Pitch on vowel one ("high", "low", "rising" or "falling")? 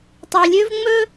low